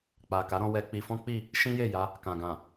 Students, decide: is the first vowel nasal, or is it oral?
oral